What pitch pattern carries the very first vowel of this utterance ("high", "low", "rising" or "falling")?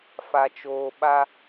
low